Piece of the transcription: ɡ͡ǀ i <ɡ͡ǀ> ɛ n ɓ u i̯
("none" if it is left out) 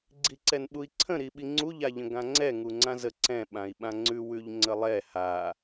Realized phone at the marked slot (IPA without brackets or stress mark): ǀ